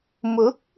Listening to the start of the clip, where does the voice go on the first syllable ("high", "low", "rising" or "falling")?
rising